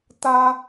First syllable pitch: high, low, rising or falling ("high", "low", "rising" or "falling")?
high